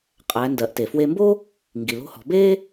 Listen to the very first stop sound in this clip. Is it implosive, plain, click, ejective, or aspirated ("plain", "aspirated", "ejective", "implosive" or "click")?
ejective